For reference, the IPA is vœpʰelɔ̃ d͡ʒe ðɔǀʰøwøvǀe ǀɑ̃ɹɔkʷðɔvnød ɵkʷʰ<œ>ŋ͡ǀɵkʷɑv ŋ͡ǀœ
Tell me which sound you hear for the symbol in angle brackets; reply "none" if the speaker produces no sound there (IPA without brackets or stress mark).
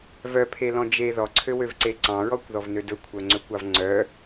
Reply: œ